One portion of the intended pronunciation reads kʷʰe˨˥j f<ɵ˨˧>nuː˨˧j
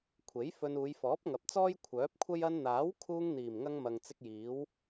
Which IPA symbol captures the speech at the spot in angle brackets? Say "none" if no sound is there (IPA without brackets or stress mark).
ɵ˧